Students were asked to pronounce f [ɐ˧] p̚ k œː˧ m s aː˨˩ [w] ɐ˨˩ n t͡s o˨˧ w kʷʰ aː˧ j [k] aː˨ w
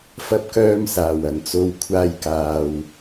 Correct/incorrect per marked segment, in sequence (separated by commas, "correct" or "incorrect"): correct, correct, correct